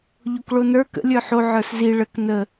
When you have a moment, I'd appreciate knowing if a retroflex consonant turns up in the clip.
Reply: yes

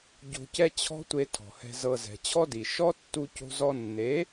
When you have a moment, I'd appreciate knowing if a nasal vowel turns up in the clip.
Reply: no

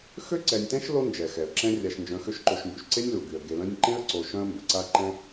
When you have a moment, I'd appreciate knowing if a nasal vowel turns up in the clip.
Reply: yes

